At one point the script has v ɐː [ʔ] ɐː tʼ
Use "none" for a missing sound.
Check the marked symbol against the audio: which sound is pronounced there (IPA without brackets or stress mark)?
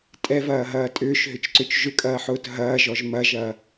ɦ